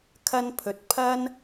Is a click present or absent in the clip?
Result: absent